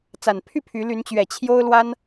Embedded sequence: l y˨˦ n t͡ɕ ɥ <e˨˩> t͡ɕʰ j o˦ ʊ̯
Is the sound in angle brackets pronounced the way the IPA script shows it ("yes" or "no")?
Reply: no